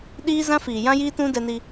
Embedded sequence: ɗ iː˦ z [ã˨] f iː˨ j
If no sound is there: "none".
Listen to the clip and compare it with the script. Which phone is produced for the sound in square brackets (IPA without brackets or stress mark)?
ã˦